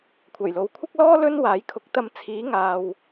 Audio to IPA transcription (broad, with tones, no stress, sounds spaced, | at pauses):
kʷʰ ɐ˨˩ j l o˨ w kʷʰ ɪ˥ k̚ l ɔː˥ l ɵ˥ n w aː˨˥ j kʰ ʊ˨˥ k̚ t̪ ɐ˧ m t͡sʰ iː˨˥ ŋ aː˨ w